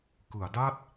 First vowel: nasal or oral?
oral